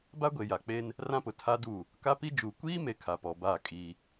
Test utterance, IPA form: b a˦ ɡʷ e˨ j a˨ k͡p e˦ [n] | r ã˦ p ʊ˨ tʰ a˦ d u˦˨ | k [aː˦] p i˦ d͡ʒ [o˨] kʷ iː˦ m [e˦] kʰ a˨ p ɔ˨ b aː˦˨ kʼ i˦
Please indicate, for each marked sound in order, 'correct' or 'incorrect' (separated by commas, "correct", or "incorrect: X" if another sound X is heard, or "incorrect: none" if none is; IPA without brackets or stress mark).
correct, incorrect: a˦, incorrect: u˨, incorrect: e˨